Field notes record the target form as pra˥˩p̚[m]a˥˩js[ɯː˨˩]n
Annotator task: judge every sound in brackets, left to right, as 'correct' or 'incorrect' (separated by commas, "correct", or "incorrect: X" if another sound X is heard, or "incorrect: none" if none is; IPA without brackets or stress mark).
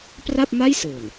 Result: correct, correct